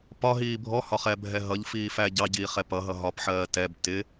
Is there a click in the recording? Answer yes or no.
no